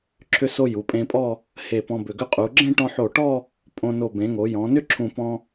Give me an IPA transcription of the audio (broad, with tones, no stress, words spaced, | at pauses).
ǁʰʏ˧so˧ ju˩˧pʼẽ˧pʼɔ˥˧ | he˧˩pɔ̃˧bʏ˧˩ ɡʏ˧qʼu˩˧ ɡ͡ǁẽ˥˧ʈɔ̃˧ħo˧˩ʈɔ˥˧ | pʼõ˧ no˧˩bẽ˩˧ŋo˩˧ jɔ̃˩˧nʏ˥ ǁʰũ˧˩pɔ̃˧